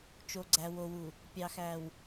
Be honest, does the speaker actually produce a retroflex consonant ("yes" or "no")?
no